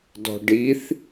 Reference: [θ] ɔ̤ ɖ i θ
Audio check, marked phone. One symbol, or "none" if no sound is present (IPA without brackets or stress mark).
d